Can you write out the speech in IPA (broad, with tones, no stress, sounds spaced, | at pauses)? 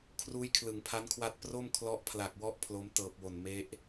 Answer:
kʰ r uː˦˥ j kʰ l ɯ˩˦ ŋ pʰ a˦˥ n kʰ w a˦˥ t̚ p r o˥˩ m kʰ l ɔ˦˥ ʔ pʰ l a˨˩ k̚ w ɔ˥˩ ʔ pʰ l o˦˥ m t ɤː˨˩ p̚ w o˨˩ n m e˦˥ ʔ